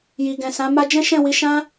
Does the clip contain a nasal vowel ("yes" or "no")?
yes